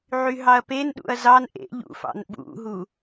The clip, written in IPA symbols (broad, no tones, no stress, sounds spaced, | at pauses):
ʕ y ɦ ɑ ɐ̯ p e n ɗ ṵ ɐ̯ z ɑ n ʔ ḛ ʎ ṵ f ɑ̰ n ɓ ṵ ɦ u